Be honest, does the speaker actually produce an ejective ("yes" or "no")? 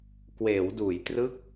no